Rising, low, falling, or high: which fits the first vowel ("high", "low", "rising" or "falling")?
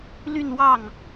falling